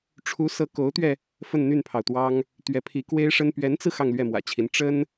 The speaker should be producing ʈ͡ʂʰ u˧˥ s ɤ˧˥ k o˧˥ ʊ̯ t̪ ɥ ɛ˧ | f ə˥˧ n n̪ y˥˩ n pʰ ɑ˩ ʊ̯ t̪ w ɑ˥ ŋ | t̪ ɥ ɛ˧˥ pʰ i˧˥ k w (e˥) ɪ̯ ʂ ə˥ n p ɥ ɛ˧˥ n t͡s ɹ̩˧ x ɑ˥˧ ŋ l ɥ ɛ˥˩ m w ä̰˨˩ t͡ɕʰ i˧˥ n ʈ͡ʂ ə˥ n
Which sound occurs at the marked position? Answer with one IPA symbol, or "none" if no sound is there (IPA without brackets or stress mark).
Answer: e˥